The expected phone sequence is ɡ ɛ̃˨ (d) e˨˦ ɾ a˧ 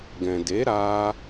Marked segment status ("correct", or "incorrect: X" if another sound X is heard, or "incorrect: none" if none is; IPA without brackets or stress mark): correct